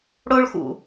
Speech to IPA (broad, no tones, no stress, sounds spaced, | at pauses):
ɽ o ɭ x ṵ